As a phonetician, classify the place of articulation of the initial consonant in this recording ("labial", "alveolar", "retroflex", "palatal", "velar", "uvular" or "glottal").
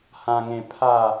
glottal